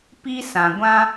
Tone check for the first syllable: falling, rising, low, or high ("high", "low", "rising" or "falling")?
high